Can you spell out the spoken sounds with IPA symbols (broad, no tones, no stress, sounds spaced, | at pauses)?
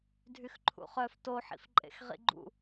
dʱ y x ǃʰ ṵ χ œ f t o ħ ḭ f ǃʼ ḛ x ʁ ḭ ɡ͡ǃ ṵ